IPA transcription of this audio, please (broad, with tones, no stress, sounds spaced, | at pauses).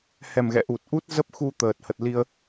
h ɛ˨˩ m ɣ ɛ̰˧˨ ʔ u˨˩ t̚ ʔ u˦˥ t̚ z ə˦˥ p̚ x u˧ t̪ əː˨˩ t̚ h ə˨˩ t̚ l i˧ ə̯